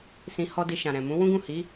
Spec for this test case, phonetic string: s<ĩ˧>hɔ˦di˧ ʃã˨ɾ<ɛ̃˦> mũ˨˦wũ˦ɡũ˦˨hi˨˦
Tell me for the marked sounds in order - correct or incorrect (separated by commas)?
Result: correct, incorrect